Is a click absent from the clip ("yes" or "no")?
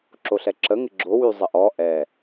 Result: no